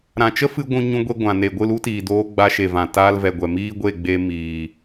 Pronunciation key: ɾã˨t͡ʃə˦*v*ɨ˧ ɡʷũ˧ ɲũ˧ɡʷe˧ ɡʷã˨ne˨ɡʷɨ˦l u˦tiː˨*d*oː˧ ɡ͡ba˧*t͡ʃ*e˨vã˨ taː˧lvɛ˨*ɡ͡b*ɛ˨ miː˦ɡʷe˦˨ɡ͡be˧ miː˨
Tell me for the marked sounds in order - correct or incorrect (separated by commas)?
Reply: incorrect, correct, incorrect, incorrect